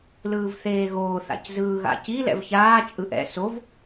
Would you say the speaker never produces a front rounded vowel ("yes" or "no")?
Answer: yes